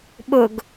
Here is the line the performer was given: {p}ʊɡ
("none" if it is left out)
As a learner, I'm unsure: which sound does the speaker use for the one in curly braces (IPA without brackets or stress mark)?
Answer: ɓ